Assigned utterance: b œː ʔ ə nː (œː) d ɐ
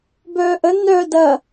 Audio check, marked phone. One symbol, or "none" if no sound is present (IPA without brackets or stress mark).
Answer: œː